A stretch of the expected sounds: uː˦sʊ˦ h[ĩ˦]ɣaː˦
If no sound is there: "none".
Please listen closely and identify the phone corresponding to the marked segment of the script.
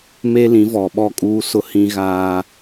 ĩ˦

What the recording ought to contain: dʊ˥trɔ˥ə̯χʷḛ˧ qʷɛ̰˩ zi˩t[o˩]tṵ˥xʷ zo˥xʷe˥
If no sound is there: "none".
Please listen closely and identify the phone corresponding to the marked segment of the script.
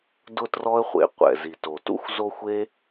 o˩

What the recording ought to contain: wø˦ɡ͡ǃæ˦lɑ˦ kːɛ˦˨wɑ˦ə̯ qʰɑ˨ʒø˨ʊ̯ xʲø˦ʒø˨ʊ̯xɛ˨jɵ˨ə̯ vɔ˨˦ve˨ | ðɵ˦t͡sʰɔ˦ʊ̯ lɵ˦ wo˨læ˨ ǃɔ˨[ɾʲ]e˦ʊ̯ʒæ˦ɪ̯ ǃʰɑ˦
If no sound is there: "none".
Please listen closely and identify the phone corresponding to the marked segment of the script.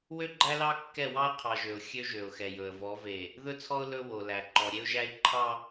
ɾʲ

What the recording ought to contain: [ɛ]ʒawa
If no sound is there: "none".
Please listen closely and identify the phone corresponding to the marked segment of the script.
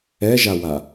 ɛ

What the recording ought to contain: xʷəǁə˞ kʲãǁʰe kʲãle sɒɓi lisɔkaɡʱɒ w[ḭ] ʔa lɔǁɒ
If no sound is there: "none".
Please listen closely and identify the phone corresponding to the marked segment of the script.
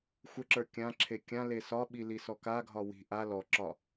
i̤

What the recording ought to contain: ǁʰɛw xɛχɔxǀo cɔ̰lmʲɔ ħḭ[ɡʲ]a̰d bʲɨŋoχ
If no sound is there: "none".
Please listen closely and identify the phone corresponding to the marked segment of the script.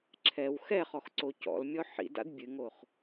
d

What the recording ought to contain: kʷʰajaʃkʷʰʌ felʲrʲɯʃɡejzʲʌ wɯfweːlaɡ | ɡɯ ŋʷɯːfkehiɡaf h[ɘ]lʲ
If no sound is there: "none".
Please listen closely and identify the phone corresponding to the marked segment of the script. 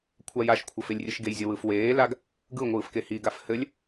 ɘ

